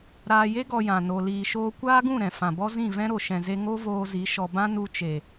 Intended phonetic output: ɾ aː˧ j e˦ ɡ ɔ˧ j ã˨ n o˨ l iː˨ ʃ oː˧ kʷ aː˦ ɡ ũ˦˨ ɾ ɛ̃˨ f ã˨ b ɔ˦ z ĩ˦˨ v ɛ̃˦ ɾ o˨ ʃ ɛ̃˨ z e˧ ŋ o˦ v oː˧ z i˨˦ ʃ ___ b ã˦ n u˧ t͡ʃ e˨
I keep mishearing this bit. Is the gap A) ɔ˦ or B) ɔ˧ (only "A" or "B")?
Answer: B